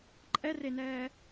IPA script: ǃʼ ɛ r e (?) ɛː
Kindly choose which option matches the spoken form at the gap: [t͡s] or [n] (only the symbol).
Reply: n